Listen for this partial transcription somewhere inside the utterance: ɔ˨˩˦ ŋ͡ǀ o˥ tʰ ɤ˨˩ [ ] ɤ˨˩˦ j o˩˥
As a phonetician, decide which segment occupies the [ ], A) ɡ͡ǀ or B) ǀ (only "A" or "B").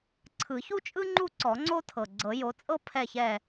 A